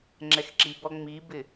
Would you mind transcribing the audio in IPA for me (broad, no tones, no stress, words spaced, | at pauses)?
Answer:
ŋ͡ǁɛxǁibɔ ŋ͡mibɪ